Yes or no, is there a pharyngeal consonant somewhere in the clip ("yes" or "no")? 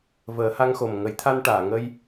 no